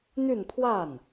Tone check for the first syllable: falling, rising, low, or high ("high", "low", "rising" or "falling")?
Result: falling